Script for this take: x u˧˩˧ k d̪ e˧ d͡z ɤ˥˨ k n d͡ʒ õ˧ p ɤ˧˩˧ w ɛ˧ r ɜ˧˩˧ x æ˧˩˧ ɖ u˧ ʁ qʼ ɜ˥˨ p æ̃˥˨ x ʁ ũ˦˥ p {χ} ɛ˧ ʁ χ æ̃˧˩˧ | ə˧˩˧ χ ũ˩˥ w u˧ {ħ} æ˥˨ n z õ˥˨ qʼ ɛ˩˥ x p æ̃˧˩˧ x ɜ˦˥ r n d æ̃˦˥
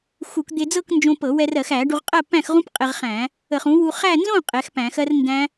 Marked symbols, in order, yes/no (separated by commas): no, no